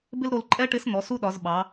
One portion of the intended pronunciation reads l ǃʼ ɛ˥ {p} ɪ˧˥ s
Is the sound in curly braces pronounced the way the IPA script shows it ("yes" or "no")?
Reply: no